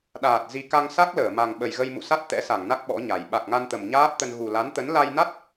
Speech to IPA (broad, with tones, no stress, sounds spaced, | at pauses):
ɗ aː˨˩ t̚ z i˧ k a˧ ŋ s a˦˥ k̚ l əː˧˩ m a˨˩ ŋ ɓ ə˨˩ j ɣ ə˧ j m ṵ˧˨ s a˦˥ t̚ t̪ ɛ̰˧˥ s a˧˩ ŋ n a˦˥ k̚ ɓ ɔ̰˧˥ ɲ a˨˩ j ɓ a˨˩ k̚ ŋ a˧ n t̪ ə˨˩ m ɲ aː˦˥ p̚ t̪ ə˧ n ɣ u˨˩ l a˨˦ n t̪ ə˨˦ n l a˧ j n a˦˥ t̚